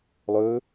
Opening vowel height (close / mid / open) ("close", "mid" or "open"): mid